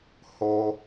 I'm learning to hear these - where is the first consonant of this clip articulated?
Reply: throat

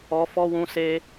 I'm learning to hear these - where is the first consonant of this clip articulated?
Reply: lips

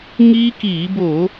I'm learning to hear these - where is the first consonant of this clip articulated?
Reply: velum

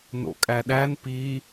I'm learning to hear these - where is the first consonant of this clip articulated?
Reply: tongue tip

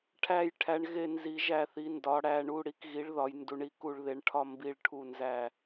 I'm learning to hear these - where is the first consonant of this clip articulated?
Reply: retroflex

